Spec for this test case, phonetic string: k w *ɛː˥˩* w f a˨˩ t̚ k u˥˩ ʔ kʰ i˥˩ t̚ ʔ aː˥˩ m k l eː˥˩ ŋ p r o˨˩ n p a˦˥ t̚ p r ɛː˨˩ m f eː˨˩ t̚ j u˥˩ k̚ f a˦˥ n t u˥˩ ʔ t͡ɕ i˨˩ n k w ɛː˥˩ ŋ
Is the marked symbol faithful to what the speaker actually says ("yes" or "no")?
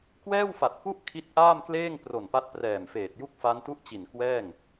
yes